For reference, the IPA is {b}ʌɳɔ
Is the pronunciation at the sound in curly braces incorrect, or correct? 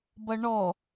correct